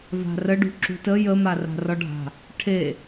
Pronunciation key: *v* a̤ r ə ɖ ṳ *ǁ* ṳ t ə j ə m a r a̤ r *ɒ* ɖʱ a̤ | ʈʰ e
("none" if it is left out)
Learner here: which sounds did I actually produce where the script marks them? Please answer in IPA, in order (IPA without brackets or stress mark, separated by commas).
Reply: v, ǁ, ɒ